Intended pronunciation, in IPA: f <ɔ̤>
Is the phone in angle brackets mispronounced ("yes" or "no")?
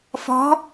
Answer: no